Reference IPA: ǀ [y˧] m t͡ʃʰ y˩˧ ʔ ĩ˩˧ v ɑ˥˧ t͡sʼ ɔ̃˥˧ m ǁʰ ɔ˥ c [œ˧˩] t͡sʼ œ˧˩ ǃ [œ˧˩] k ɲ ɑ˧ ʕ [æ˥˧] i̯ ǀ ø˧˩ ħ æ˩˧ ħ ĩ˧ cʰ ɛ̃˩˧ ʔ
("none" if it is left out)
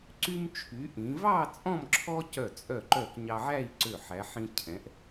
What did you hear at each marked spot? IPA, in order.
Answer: y˧, œ˧˩, œ˧˩, æ˥˧

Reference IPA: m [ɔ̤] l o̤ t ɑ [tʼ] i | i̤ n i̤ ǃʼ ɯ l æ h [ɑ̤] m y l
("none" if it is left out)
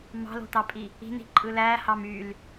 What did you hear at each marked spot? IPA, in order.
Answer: ɑ̤, pʼ, ɑ

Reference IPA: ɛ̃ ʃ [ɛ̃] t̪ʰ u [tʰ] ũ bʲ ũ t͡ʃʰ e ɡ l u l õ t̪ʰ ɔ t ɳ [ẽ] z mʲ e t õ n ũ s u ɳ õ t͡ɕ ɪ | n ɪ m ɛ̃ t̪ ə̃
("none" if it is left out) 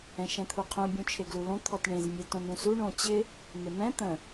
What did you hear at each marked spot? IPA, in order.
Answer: ɛ̃, qʰ, ẽ

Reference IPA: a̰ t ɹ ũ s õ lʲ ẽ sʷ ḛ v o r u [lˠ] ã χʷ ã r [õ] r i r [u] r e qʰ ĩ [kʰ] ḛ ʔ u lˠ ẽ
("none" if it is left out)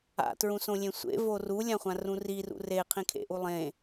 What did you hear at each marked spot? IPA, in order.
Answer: lʲ, ũ, ṵ, kʰ

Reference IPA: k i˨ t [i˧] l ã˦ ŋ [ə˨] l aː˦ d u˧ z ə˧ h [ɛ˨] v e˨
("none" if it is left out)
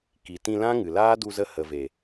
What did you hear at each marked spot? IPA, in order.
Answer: ĩ˧, ɨ˨, ə˨

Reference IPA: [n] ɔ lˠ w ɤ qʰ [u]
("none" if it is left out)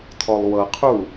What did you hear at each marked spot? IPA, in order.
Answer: tʰ, u

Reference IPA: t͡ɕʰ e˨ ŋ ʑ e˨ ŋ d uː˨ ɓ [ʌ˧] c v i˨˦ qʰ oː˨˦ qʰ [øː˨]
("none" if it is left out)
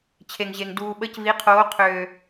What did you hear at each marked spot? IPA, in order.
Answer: ə˧, øː˨

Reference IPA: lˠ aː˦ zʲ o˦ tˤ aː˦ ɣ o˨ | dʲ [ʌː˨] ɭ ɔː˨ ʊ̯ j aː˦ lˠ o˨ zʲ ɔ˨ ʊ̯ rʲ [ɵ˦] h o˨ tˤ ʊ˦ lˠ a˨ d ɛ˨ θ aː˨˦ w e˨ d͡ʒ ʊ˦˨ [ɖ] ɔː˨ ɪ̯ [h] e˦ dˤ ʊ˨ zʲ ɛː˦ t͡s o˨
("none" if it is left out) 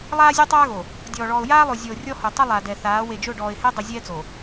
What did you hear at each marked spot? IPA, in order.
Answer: ɔː˨, ɔ˦, ɖ, h

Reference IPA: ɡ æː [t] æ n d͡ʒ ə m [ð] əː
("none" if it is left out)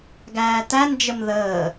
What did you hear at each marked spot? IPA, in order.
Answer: t, ð

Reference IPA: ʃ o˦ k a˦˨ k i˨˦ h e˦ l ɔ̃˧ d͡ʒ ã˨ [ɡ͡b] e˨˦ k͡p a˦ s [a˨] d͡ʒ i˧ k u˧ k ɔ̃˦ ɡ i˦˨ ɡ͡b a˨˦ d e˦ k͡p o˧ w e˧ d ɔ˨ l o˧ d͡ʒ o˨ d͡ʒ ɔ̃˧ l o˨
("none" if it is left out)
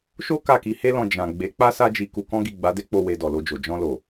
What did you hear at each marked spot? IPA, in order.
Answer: ɡ͡b, a˦

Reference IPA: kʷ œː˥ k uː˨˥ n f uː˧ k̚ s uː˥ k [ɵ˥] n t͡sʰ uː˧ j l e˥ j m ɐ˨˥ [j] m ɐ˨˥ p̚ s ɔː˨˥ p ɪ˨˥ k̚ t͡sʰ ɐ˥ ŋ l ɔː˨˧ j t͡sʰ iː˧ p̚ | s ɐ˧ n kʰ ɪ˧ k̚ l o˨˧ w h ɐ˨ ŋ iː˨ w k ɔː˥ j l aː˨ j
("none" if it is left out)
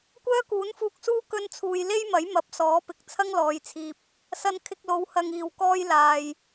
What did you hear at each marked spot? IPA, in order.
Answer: ɵ˥, j

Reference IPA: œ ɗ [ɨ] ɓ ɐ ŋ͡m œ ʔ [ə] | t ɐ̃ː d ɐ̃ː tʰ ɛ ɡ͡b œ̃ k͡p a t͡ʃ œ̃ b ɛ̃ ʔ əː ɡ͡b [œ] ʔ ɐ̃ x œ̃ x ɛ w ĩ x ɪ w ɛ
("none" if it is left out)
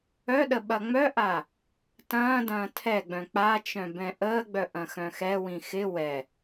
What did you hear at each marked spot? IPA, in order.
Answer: ə, a, œ

